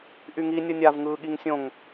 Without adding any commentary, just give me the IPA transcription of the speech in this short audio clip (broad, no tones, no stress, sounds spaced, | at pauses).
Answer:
ʔ y ŋ i nʲ ɯ nʲ a v ŋ ɯː ɠ i ŋ sʲ õ ŋ